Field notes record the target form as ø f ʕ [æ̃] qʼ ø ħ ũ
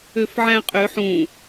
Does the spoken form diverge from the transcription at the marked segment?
no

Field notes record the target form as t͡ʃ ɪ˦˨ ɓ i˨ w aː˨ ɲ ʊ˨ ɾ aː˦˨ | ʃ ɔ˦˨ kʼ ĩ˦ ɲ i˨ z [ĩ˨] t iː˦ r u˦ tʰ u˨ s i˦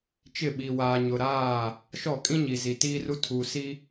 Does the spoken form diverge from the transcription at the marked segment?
yes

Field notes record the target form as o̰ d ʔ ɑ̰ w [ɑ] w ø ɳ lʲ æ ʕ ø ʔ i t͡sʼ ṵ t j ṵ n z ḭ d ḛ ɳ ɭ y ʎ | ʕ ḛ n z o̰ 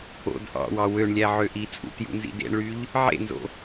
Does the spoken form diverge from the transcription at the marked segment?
no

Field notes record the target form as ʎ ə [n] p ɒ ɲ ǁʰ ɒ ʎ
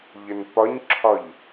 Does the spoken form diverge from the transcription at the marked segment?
no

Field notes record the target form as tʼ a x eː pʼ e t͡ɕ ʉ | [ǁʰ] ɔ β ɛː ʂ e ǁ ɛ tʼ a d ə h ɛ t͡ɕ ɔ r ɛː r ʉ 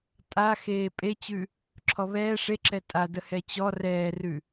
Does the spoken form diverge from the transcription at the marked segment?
no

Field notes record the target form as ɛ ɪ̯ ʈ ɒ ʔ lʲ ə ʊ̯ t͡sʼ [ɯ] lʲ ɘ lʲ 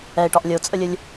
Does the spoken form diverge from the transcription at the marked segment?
yes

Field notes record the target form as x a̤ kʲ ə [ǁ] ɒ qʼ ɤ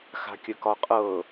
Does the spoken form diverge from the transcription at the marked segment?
yes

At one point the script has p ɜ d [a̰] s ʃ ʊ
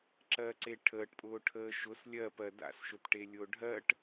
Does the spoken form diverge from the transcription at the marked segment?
no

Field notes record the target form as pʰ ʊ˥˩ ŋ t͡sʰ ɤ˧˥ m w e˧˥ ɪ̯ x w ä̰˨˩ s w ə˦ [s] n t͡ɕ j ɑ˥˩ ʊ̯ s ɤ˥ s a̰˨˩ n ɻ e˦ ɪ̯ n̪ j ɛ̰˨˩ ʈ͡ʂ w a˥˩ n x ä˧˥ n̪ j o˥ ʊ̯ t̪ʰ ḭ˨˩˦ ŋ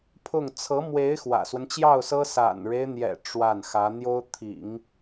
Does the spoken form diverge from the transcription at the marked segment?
yes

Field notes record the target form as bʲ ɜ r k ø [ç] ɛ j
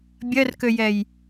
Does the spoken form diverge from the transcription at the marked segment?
yes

